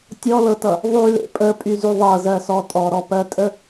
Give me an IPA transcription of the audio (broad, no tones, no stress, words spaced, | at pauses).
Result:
tʲɔlɤtʌ | ðˤylḛ pʼəpʼyzy ðˤɤzɜsɔ tʼɔɾɔpɜtʼə